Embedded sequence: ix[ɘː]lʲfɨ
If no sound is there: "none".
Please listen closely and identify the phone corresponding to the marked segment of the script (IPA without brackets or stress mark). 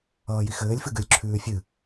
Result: ɘː